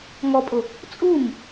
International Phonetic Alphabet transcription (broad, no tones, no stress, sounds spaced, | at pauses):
ŋ ɔ pʼ ʊ | t͡sʼ u m